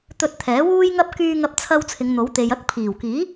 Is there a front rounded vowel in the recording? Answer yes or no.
yes